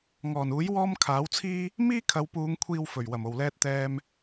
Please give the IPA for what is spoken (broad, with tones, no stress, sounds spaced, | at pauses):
ŋ ɔː˨˩ n uː˨˥ j w ɔː˧ m kʰ aː˨˥ w t͡sʰ iː˥ | m iː˥ kʰ ɐ˨˧ w p uː˨˧ ŋ kʷʰ iː˨ w f ɵ˨˩ ɥ w ɐ˨˩ m o˨˩ w l ɛː˧ t̚ t̪ ɛː˧ m